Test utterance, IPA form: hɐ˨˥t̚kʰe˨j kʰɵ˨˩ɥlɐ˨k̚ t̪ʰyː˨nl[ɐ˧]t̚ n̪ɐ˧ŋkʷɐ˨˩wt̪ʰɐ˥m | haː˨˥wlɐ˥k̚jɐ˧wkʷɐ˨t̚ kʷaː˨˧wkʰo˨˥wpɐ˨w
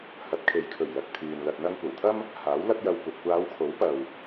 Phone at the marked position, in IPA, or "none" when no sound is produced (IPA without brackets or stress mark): ɐ˧